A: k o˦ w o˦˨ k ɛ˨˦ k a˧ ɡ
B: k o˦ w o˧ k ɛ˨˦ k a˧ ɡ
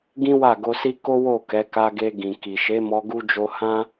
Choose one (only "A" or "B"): A